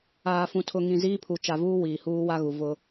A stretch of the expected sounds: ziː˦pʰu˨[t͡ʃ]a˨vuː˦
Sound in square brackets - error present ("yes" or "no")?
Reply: no